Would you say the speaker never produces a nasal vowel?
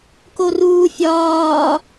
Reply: yes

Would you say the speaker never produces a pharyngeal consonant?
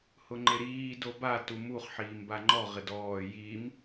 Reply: no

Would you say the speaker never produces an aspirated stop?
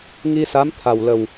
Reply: no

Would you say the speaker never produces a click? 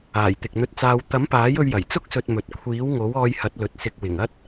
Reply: yes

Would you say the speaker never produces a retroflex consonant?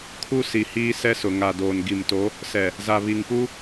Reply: yes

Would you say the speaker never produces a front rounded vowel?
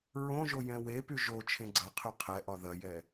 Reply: no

